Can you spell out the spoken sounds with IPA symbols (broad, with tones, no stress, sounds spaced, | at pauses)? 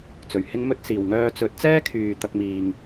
t͡s ɵ˨ ɥ h ɪ˥ ŋ m ɵ˥ t̚ s iː˨ w ŋ œː˧ t͡s ɵ˨˥ t̚ t͡s ɛː˥ kʰ yː˨ t̪ ɐ˧ k̚ m iː˨ ŋ